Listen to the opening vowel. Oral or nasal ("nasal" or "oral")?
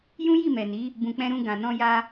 nasal